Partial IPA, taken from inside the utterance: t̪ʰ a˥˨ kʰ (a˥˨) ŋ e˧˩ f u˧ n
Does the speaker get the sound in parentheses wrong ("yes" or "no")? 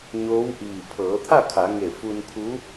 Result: yes